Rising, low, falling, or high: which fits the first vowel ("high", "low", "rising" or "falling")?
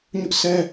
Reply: high